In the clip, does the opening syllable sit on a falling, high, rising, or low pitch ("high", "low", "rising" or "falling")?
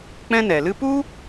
high